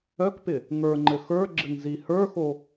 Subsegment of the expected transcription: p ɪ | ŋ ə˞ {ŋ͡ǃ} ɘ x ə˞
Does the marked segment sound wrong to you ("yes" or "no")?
no